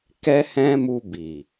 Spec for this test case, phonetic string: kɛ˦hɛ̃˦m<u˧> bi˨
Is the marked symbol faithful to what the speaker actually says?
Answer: yes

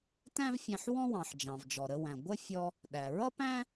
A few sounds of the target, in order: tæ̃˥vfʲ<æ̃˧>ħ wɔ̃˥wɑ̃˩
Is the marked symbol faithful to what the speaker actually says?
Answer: yes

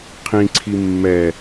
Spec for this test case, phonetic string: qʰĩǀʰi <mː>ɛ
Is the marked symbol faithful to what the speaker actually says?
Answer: yes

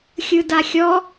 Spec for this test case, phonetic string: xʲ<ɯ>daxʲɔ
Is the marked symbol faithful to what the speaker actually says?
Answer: yes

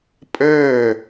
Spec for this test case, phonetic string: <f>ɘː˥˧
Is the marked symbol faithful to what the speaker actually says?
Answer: no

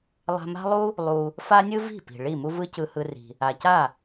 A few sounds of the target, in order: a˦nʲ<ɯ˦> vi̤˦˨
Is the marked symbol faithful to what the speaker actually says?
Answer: yes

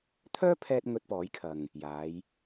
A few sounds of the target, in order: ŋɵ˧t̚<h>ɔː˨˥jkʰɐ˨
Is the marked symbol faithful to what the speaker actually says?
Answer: no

